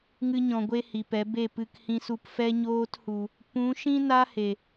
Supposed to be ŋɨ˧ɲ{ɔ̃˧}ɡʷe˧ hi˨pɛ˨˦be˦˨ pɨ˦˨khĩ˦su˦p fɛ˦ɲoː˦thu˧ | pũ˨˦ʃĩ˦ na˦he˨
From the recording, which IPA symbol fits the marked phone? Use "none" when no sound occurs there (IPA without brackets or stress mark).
ɔ̃˨